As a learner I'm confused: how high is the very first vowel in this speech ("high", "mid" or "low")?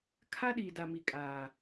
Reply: low